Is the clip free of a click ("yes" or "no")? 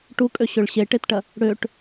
yes